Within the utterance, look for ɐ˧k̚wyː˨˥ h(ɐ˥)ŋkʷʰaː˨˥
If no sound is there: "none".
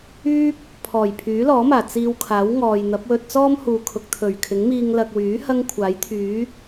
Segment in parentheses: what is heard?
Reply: ɐ˥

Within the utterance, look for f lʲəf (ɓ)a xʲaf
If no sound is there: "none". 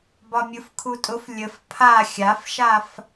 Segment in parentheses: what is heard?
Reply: pʰ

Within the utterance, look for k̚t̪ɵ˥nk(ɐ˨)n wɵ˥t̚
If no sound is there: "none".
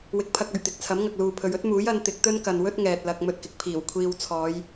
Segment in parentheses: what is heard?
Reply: ɐ˨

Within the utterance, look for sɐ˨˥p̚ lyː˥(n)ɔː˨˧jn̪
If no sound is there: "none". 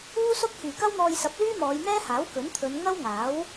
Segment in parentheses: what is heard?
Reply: m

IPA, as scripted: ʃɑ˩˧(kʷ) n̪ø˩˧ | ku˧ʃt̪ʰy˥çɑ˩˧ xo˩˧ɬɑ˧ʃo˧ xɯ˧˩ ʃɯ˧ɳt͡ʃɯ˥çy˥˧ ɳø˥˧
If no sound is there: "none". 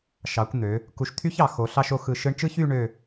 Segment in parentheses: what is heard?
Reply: kʷ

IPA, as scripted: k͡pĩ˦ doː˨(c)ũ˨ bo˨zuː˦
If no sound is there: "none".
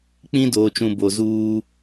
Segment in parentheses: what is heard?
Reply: t͡ʃ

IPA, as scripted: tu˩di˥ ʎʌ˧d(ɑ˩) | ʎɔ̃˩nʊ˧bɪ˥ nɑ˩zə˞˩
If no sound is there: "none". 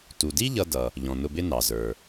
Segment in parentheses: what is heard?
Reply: ʌ˩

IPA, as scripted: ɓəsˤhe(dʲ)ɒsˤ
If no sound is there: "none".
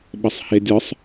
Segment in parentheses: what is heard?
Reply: dʲ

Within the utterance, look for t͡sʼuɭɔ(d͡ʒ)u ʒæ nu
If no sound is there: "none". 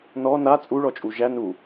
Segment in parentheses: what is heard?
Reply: t͡ʃʼ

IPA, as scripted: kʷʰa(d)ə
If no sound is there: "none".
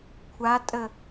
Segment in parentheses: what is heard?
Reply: tʼ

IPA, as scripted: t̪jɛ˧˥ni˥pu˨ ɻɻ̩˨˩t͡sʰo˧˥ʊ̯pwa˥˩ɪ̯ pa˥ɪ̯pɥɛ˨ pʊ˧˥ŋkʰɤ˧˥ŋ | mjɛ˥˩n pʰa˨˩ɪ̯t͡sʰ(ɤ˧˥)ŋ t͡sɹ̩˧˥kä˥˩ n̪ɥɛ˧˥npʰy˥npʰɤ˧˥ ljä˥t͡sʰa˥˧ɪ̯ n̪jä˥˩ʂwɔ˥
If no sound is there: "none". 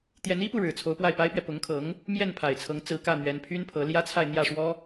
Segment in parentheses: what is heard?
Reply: ɤ˧˥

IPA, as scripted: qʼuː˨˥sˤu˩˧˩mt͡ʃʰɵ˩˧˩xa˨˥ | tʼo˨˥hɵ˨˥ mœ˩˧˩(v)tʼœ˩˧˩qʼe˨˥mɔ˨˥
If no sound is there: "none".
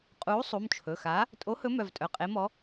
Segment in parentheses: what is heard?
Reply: v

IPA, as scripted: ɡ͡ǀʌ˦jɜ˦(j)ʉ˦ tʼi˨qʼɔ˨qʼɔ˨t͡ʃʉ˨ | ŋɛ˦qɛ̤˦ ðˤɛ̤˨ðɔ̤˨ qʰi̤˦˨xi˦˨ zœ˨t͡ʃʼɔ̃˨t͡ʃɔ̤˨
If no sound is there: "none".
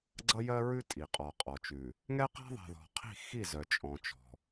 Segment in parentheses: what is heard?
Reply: ɹ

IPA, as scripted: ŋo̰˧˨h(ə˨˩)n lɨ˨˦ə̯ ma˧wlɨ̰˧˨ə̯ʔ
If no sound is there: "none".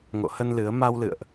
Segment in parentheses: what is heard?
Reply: ə˧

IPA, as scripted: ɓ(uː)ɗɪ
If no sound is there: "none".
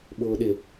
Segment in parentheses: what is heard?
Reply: ʊː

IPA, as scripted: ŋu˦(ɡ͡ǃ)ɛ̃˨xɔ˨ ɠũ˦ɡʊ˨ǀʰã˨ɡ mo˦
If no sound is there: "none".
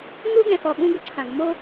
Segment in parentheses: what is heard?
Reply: ɡ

